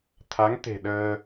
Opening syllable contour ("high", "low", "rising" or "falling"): rising